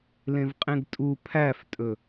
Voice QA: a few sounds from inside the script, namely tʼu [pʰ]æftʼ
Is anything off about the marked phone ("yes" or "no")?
no